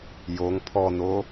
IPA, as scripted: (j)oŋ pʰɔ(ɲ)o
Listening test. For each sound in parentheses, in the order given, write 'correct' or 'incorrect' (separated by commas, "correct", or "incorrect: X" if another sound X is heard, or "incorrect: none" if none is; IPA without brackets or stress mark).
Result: correct, incorrect: n̪